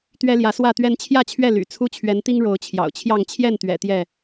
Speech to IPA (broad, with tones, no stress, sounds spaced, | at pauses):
t̪ ɥ ɛ˦ l j ä˨˦ s w ä˥˨ t̪ ɥ ɛ˦ n t͡ɕʰ j ä˥˨ t͡ɕʰ ɥ ɛ˥˨ l y̰˨˩ t͡sʰ u˦ t͡ɕʰ ɥ ɛ˨˦ n t̪ i˦ ŋ ɻ o˨˦ ʊ̯ t͡ɕʰ j ɑ̰˨˩ ʊ̯ t͡ɕʰ j ɑ˥˨ ŋ t͡ɕʰ j ɛ˥˨ n t̪ ɥ ɛ̰˨˩ t̪ j ɛ˥˨